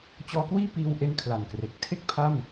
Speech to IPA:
t͡ɕ ɔː˧ k w iː˥˩ p iː˧ w ʔ e˧ n kʰ l a˨˩ n k r e˨˩ k̚ tʰ e˥˩ k̚ pʰ a˥˩ m

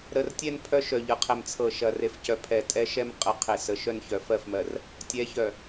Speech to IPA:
ɾ ə˨ r tʲ ɛ˦ n pʰ œ˦ ʃ œ˨ ʎ ɤ˨ qʰ ɛ˨ m t͡sʰ ɤ˨ ʃ ɐ˨ r e˨ f c œ˨ pʰ ɛ˨ tʼ ɛ˦ ʃ ɛ˦ m qʼ ə˨ qʰ e˨ s ə˨ ʃ œ˦ n ç œ˨ f ɜ˦˨ f m ɜ˨ r | tʲ ɛ˨˦ ç œ˨

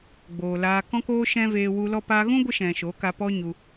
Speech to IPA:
ɡ͡b oː˨ l aː˧ k ɔ̃˦ k oː˦ ʃ ɛ̃˦ v eː˧ w u˧ l ɔ˧ p a˧ ɣ ũ˦ ɡʷ ə˧ ʃ ɛ̃˨ ʃ o˨˦ k a˧ p ɔ˦ ɲ u˧

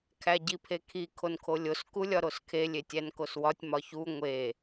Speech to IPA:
kʰ æ ɟ i pʰ e kʰ i kʰ o n kʰ o lʲ o s k u lʲ ɒ ɾ o s kʰ e lʲ e tʲ æ n k o s w ɒ tʲ m ɒ ç u ŋʷ e

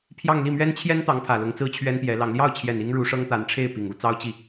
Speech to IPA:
pʰ j ɑ˥˧ ŋ l i˥˩ m ɥ ɛ˥ n t͡ɕʰ j ɛ˥ n t̪ ɑ˧˥ ŋ pʰ ä˨˩ l ʊ˧˥ ŋ t͡s ɹ̩˥ t͡ɕʰ ɥ ɛ˥ n p j ɛ˧˥ l ɑ˧˥ ŋ l j ɑ˥˩ ʊ̯ t͡ɕʰ j ɛ˨˩ n i˥ ŋ ɻ u˧˥ ʂ ɤ˥ ŋ t̪ a˧˥ n ʈ͡ʂʰ e˥˩ ɪ̯ p i˨˩ ŋ u˥˩ t͡s ɑ˥ ʊ̯ t͡ɕ i˥˩

